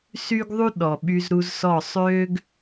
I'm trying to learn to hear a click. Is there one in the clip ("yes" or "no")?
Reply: no